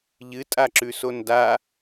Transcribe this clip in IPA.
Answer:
ʎ ɨ tʼ a ǁ ʉ s o n d a

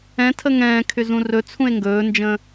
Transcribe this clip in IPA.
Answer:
ɛ̃ tʰ ə ŋ ɛ̃ː kʰ ʏ z ũ r ɵ t͡sʰ ũ e̯ ŋ ɡ ɵː n d͡ʒ ə̃ː

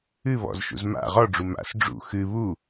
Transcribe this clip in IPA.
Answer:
ɨ β ɔ̰ z ʃ ṵ z m a̰ ʁ ɔ ɖ͡ʐ u m a̰ s ɖ͡ʐ ṵ x ɨ β u

